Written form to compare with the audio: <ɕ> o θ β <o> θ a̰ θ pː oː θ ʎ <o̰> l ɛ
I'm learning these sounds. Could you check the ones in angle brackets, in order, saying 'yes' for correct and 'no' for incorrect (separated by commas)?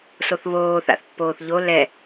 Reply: no, no, no